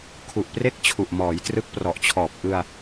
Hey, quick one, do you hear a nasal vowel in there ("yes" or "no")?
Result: no